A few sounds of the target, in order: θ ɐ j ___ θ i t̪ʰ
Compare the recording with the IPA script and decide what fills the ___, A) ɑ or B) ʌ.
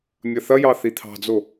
A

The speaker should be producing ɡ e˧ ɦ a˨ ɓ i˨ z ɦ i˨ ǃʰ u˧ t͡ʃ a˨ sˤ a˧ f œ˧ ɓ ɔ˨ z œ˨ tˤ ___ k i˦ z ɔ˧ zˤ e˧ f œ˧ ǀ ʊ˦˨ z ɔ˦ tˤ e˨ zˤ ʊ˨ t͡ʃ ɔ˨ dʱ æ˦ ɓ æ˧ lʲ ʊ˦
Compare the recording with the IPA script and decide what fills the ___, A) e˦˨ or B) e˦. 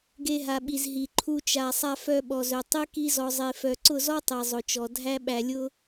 B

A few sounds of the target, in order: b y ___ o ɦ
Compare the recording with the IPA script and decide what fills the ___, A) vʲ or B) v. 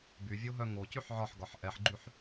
A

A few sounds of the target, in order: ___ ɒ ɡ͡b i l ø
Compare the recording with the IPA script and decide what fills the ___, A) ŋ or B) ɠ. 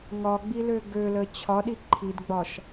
A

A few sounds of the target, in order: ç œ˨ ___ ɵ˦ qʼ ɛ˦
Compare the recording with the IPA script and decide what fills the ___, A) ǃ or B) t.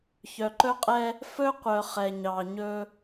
A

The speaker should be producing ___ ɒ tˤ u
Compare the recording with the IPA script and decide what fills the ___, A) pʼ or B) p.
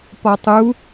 B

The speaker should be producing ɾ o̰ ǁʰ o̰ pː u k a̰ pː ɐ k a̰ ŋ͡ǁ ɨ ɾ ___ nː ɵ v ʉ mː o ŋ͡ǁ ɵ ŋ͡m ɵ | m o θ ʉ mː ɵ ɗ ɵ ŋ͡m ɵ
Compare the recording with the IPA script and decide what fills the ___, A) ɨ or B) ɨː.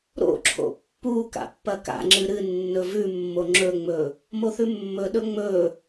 A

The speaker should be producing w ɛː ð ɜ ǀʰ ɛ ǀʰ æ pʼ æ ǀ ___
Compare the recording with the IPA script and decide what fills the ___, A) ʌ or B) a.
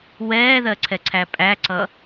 A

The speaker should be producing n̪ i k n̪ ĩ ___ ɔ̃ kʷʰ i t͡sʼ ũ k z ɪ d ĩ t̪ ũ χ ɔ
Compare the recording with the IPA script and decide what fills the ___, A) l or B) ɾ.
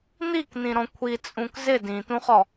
B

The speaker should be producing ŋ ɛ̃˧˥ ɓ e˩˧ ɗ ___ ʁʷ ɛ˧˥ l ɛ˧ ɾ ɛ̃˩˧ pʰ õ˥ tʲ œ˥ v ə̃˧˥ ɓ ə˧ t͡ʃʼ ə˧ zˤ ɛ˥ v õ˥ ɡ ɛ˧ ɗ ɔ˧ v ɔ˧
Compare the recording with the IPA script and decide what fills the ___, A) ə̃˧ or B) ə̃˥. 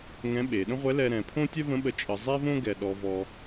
B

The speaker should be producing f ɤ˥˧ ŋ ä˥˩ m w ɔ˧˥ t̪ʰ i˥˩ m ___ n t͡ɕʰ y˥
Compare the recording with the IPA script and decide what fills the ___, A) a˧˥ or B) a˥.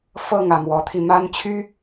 B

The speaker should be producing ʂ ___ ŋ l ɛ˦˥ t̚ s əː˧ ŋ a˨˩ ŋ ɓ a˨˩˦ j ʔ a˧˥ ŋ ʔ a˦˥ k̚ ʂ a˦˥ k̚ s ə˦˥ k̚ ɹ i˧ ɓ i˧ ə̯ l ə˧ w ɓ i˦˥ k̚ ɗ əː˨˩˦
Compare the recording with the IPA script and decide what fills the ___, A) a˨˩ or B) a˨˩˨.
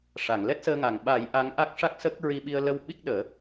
B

